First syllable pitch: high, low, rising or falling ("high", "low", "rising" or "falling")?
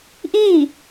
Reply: falling